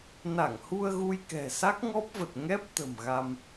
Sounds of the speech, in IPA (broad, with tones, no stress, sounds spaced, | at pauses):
n a˧˩ ŋ h u˧ ə̯ ɣ u˧ j k ɛ̤˨˩ s a˦˥ k̚ ŋ ɔ˦˥ p̚ v ə˨˩ t̚ ŋ ɛ˦˥ p̚ t̪ ə̤˨˩ m ɣ a˧ m